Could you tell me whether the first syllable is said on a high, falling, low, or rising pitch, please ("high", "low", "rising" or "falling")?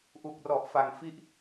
low